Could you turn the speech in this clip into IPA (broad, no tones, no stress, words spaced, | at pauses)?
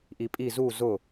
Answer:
ʔipʼi zu zʊ